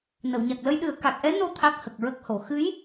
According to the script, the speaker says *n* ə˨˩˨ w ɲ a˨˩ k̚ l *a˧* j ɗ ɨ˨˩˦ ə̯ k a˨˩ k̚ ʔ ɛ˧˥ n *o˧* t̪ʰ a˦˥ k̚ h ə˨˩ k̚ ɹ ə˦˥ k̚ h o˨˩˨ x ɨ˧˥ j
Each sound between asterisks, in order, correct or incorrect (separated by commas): correct, incorrect, correct